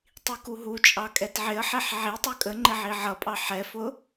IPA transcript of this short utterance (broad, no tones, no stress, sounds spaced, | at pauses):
tˤ i k u ɦ u t͡ʃʼ ɑ kʼ ɛ t ʕ ɪ ə̯ ħ ɛ ħ ʕ i tˤ ə˞ kʼ ə ŋ͡ǃ ɪ ʕ i ʕ ʌ pʼ ɑ ħ ɛ f ʊ